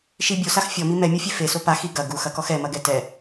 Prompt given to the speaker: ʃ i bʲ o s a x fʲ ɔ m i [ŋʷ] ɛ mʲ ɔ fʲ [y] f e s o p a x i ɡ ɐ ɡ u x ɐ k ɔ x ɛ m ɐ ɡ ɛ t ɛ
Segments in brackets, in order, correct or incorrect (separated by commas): incorrect, incorrect